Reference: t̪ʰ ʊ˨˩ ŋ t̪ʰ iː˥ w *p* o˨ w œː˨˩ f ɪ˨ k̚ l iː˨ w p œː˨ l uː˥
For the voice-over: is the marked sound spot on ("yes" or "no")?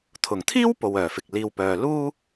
yes